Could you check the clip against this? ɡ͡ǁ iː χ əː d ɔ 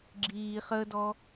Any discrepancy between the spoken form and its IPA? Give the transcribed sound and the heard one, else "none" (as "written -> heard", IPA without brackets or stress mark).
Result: none